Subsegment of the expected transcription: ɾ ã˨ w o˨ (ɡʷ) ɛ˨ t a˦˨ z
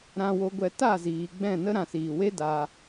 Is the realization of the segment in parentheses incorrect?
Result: no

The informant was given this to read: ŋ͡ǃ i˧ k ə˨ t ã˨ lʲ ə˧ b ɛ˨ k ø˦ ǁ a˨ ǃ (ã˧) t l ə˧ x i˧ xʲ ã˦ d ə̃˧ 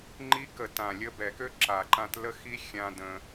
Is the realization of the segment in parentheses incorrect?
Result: no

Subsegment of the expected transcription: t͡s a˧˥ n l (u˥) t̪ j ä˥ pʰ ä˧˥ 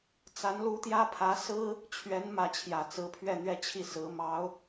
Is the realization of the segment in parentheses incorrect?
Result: yes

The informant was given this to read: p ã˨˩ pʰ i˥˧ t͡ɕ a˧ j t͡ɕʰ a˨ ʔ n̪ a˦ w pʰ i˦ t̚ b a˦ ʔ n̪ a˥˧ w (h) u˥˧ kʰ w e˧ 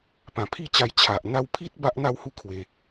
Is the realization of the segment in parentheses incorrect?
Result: no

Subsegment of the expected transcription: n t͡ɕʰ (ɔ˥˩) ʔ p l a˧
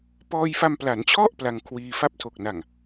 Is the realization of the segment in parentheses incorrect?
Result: no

